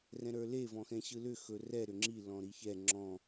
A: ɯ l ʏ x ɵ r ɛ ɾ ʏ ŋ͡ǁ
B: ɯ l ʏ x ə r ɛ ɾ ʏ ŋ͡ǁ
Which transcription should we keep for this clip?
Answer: A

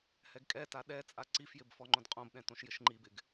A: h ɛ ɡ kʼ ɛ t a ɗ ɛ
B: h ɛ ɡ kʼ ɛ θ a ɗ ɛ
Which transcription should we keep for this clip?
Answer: A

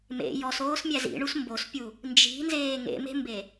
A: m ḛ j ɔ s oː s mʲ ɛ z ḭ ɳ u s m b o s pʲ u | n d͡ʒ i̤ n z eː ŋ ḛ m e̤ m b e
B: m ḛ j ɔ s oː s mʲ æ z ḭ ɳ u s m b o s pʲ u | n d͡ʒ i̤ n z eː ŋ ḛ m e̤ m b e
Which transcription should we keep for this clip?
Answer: B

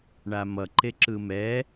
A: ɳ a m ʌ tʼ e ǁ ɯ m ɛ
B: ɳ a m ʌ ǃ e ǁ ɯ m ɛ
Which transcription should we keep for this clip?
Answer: B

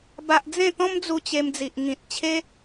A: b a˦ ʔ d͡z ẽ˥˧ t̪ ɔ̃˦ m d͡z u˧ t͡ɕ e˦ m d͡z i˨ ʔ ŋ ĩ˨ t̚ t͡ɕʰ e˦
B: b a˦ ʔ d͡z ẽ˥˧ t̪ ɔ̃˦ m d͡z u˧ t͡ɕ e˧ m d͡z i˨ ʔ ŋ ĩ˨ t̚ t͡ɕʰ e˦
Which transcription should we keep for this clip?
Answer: B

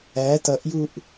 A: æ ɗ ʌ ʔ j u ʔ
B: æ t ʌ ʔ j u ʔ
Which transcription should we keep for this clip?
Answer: B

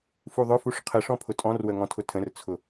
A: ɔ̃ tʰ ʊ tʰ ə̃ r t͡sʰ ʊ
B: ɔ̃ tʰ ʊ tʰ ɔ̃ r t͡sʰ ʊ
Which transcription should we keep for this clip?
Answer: A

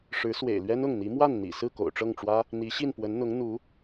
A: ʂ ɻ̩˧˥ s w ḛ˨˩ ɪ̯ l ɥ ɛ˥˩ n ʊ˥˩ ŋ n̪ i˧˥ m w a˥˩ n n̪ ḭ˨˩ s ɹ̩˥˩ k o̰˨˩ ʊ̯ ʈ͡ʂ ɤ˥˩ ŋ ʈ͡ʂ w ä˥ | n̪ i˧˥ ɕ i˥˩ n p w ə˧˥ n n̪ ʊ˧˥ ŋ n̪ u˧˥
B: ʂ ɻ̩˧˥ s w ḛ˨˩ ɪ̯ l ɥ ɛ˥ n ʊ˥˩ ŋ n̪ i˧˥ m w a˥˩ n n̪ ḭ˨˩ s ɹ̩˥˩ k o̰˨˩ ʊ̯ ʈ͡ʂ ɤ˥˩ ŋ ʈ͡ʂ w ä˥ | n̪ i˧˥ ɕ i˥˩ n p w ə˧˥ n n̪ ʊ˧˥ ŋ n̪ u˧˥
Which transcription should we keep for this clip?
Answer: B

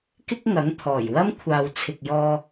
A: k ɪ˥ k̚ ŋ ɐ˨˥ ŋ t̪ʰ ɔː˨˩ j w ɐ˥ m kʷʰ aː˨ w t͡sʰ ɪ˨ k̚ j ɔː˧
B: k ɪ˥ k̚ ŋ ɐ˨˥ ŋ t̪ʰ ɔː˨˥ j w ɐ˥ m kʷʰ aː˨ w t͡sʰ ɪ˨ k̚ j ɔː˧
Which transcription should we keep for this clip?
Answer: A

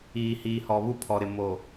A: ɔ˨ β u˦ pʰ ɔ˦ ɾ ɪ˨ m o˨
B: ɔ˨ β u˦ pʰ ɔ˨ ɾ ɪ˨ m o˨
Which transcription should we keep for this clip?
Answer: B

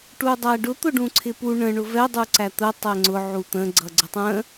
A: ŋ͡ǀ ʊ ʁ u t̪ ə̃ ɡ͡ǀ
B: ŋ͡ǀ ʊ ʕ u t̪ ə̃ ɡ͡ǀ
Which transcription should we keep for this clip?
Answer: B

